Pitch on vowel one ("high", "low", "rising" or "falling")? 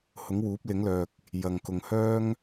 rising